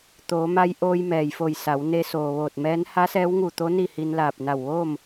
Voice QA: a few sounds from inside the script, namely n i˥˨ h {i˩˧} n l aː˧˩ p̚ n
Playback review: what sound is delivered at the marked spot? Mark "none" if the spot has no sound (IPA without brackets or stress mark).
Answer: i˧